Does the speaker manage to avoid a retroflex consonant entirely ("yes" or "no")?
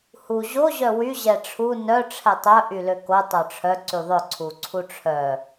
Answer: no